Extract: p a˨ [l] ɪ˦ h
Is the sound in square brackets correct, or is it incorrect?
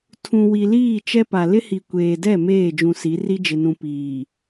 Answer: correct